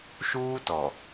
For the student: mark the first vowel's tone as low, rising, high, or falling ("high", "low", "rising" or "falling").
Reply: high